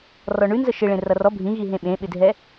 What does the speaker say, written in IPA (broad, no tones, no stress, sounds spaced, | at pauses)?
r ɔ ɳ ʉ n z ə ʃ ɪ ɭ ẽ r ʌ r ɔ bʱ ĩ ɣ i ɦ ẽ ɓ ẽ ɓ ɪ dʱ ɛ